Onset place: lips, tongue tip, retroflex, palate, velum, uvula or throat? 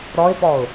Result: tongue tip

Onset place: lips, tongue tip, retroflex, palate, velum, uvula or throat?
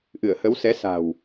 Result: throat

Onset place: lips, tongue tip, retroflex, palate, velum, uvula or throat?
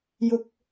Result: palate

